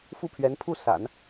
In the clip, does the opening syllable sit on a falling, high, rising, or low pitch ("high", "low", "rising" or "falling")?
falling